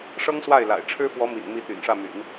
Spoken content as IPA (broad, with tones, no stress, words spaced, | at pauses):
ʂɤ˥ŋswa˥˩ɪ̯la̰˨˩ɪ̯ ʈ͡ʂʰɻ̩˥fwɔ˧˥mḭ˨˩nmi˧˥ t̪y̰˨˩nʂä˥˩my̰˨˩˦n